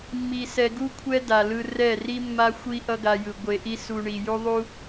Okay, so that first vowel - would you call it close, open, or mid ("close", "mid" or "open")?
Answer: close